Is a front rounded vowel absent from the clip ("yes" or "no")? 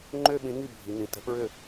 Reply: no